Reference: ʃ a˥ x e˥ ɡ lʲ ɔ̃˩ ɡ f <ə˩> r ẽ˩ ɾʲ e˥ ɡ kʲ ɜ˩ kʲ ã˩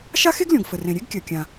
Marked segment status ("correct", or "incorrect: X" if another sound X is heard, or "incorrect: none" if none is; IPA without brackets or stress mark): correct